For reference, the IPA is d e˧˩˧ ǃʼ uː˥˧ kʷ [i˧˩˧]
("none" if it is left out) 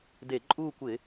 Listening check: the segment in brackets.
ɪ˧˩˧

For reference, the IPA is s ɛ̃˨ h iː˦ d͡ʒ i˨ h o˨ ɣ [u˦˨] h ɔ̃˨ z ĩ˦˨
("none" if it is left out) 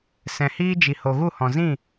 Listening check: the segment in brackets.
u˦˨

